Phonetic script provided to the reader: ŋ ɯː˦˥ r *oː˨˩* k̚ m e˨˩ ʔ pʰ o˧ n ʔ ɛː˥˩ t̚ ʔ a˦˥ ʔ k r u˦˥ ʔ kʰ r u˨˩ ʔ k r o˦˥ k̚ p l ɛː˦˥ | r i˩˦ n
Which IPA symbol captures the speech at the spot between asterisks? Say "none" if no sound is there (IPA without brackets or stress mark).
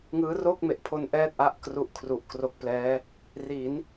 oː˥˩